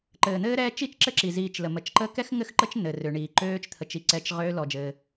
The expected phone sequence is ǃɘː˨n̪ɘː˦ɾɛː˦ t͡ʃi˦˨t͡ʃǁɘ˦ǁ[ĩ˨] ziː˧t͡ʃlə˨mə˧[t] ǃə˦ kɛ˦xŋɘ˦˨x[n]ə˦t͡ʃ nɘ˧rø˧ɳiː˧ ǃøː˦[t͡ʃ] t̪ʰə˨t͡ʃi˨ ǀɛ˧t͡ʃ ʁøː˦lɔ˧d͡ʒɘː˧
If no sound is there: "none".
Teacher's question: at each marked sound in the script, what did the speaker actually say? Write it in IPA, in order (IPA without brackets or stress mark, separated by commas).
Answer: i˨, t͡ʃ, ǃ, t͡ʃ